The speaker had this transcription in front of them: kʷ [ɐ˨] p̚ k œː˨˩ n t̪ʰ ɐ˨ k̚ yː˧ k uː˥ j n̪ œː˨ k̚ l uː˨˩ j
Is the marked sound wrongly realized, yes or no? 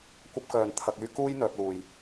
yes